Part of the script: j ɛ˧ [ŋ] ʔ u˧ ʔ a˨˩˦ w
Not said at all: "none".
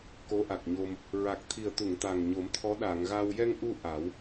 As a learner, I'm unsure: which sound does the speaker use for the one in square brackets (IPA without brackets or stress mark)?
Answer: ŋ